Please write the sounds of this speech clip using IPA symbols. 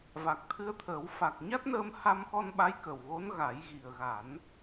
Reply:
v a˨˩ k̚ t̪ʰ ɨ˧ ə̯ t̪ʰ əː˨˩˦ w f a˨˩ k̚ ɲ a˦˥ t̚ n əː˧ m h a˧ m x ɔ˧ n ɓ a˧˥ j k ə˨˩ w ɣ o˧˥ n ɣ a˨˩˦ j ɣ i˨˩ ə̯ ɣ a˨˩˦ n

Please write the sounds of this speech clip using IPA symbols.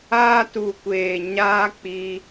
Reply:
aː˦ t u˧ kʷ eː˧ ɲ aː˦ k͡p iː˦

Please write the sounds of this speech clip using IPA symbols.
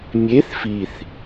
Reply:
mʲ e θ f i θ

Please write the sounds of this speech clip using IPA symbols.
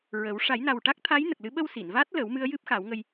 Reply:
ɹ ə˨˩˦ w ʂ a˨˩˦ j n a˨˩ w ʈ a˦˥ k̚ t̪ʰ a˧˥ j n ə˨˩ k̚ l ɨ˧˥ ɓ ə˧ w s i˨˩˨ n v a˦˥ t̚ l ə˨˩˦ w m ɨ˧˥ ə̯ j ɨ˦˥ p̚ x a˨˩˦ w ŋ ə˧ j

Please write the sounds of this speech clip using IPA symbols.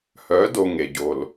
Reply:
h œ˨˦ d o˨ ŋ e˨ ɟ o˨ l

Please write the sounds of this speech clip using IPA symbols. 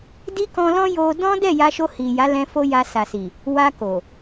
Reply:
d i˦ k ɔ̃˧ l ɔ̃˦ j o˧ d ɔ̃˦ d ɛ˦˨ j a˧ ʃ o˧ h i˨ j a˨˦ l ɛ̃˧ f o˦ j a˧ s a˨ s i˨ | w a˧ k o˨

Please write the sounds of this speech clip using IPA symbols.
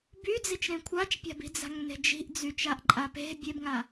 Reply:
b y d͡z i t͡ʃ ɾ ẽ kʷʰ a t͡ʃ pʲ a̤ b i̤ d͡z a̤ ŋ n e̤ d͡ʒ i̤ ʔ d͡z y t͡ʃ a ʔ ǃʼ a p e̤ bʲ e b ŋ a

